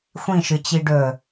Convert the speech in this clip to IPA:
xʷ ĩ ʃ ɨ t͡ɕ i ɖ ɵ

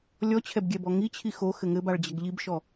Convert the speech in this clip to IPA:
lʲ ɔ t͡ɕʰ ɛ b ɡʲ ɛ b ɔ ŋ i t͡ɕʰ i x o x ɘ ŋ ɘ b a ɭ d͡ʑ ɐ ɡ ʎ i b ʃ ɔ

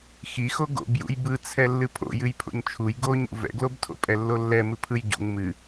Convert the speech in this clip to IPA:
x i x o ɡ o̰ b j ṵ j b ɯ t͡sʰ ɛ lː ɨ pʰ o̰ j ɨ j pʰ o̰ ɲ t͡ʃʰ u j ɡ o ɲ ṵ v ɛ̰ ɡ l o b tʰ o̰ pʼ ɛ lː o lː ɛ m ɨ pʰ ɯ j ɟ ṵ ŋ m ɨ

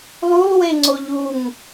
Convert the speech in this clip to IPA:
lˠ u lˠ w e ŋ͡ǀ o ʎ u ŋ

